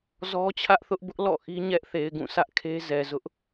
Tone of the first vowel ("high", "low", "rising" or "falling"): high